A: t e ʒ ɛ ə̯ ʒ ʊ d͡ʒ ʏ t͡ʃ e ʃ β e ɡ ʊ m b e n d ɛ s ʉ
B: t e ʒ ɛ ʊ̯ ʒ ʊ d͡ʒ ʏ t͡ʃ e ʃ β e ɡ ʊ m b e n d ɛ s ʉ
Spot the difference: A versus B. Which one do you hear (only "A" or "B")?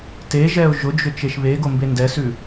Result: B